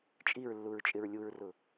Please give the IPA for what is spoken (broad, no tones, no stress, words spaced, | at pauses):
t͡ʃʼiɹlːuɹt͡ʃʼɪɹ lʲuɹrʊ